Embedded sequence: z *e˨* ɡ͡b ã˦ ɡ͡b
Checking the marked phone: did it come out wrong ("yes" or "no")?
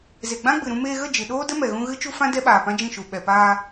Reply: no